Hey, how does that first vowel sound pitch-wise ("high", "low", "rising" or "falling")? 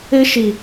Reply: high